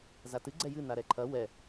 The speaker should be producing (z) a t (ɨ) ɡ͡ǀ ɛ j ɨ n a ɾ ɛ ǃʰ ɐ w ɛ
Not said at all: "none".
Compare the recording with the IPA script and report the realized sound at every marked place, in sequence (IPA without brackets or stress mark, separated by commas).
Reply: z, ɨ